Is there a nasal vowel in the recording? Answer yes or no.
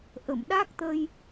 no